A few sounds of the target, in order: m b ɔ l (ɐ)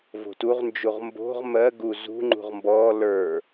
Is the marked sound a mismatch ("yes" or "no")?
yes